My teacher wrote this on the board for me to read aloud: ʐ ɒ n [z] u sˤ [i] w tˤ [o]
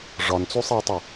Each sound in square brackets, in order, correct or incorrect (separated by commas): incorrect, correct, correct